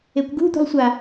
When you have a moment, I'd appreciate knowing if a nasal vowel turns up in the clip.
no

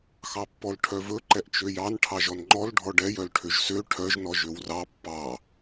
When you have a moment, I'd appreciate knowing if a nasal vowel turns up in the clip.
no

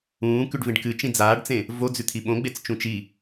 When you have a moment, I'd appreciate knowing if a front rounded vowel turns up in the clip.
no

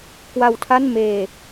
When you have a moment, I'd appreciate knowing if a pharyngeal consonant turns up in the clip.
no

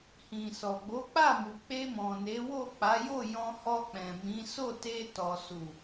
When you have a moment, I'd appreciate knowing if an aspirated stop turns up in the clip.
no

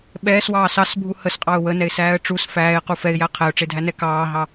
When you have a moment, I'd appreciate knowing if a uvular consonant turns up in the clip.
yes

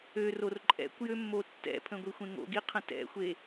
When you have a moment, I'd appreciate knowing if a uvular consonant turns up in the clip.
yes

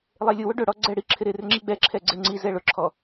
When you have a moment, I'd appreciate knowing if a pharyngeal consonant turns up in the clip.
no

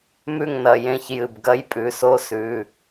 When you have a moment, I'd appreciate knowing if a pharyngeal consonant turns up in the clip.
no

